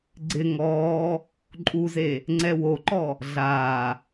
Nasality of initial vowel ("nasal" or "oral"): oral